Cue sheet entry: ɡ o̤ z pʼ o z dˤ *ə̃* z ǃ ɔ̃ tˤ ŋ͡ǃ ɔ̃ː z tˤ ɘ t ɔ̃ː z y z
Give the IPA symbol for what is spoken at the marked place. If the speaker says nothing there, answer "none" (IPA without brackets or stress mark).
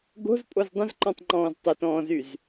ə̃